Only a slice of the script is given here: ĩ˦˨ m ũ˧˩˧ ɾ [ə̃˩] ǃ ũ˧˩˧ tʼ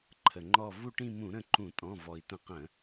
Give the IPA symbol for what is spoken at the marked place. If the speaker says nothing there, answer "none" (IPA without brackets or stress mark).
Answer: ə̃˦˨